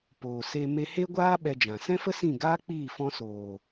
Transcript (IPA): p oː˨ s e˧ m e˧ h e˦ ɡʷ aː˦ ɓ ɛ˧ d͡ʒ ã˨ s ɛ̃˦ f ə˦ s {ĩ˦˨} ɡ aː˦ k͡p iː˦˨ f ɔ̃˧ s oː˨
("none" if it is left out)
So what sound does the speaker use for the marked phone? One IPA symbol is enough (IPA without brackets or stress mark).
ĩ˦˨